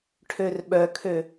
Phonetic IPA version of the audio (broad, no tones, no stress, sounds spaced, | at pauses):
ʈʰ ø r ɓ œ kʰ ø